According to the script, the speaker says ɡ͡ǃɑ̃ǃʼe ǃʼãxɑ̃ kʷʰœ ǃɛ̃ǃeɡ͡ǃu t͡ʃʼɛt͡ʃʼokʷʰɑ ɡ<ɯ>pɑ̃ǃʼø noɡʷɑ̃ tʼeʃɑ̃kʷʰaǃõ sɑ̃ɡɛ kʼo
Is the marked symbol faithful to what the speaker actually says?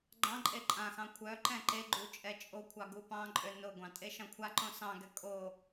no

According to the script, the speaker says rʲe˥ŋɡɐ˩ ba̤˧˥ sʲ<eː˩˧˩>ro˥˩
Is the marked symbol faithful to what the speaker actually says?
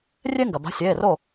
yes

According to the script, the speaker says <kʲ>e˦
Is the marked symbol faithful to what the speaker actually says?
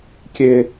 yes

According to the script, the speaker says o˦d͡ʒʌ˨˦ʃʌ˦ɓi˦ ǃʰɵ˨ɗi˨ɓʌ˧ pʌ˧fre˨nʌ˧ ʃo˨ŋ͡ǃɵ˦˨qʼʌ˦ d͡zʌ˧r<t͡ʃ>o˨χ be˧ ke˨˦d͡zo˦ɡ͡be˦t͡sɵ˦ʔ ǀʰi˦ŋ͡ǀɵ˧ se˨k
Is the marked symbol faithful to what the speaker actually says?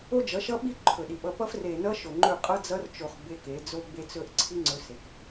yes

